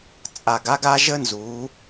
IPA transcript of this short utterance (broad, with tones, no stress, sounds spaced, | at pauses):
t͡sʼ a˨ ɡ a˦ ɡ a˦ ʒ ə˦ n z u˨˦